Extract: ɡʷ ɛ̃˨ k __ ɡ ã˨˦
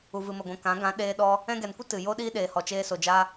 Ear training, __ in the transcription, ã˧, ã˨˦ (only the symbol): ã˨˦